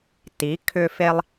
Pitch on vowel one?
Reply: rising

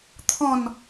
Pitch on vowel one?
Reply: falling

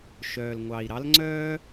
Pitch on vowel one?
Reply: low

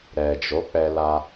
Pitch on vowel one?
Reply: low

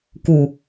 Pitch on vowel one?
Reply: low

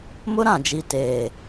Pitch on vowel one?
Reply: high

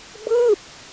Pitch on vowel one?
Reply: falling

